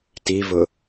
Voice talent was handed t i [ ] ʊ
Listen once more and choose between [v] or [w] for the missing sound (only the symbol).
v